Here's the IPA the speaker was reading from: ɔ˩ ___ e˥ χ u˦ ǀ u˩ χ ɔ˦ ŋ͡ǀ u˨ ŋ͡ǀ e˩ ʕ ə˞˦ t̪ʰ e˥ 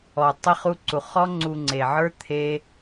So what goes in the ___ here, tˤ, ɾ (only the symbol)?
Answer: tˤ